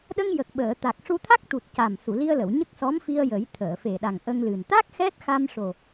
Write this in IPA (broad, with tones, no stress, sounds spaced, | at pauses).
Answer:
ɗ ə˧ ŋ j ə˨˩ k̚ ɓ əː˨˩˨ t̪ a˨˩ k̚ ʂ u˧ t̪ʰ a˦˥ k̚ t̪ u˨˩ t̚ c a˨˩ m s u˨˩˨ l i˧ ə̯ l ə˨˩˨ w ɲ ə˦˥ k̚ s ɔ˧˥ m f i˧ ə̯ j ə˨˩˦ j t̪ʰ əː˨˩˨ f e˨˩ ɗ a˨˩ ŋ ʔ ə˧ ŋ l ɨ˨˩ n t̪ a˦˥ k̚ x ɛ˦˥ t̚ x a˧ m ʂ o˨˩